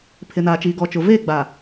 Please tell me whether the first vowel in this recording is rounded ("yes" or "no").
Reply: no